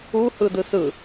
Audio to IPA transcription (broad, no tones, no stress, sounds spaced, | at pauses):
u h ɯ d ɯ s ɯ